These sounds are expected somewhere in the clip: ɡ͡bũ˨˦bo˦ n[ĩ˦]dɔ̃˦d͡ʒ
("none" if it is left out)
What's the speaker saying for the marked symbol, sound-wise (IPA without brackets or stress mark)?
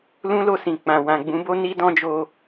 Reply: i˦